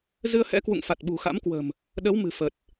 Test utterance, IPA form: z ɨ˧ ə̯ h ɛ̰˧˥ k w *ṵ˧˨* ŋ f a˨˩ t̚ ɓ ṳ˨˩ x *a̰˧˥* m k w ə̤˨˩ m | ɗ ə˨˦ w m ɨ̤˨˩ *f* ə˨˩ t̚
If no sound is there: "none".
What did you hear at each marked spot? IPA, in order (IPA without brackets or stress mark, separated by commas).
ṵ˧˨, a̰˧˥, f